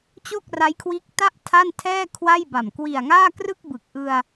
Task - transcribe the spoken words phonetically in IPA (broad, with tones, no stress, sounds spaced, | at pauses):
t͡ɕ o˥˩ k̚ r a˦˥ j kʰ w iː˦˥ k̚ t a˥˩ ʔ tʰ a˥˩ n tʰ ɛː˥˩ kʰ w a˥˩ j b a˨˩ m k w i˨˩ a̯ ŋ aː˥˩ k r ɯ˥˩ k̚ b ɯ˨˩ k̚ ʔ ɯ˧ a̯